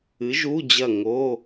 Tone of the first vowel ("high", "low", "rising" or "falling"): rising